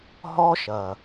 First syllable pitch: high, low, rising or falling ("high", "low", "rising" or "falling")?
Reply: high